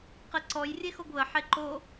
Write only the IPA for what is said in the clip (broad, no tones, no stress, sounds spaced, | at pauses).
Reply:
q ɛ ǀ ɔ j rʲ e x o ɡ β ə ħ e ǃ o